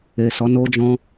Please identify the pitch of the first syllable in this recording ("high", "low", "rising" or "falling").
low